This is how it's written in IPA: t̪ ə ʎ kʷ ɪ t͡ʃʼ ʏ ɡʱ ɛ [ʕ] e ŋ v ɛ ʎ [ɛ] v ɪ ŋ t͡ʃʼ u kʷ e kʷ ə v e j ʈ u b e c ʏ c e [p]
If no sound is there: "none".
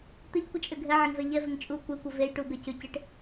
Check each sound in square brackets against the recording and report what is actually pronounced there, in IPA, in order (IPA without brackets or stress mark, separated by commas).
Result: ʕ, ɛ, ʈ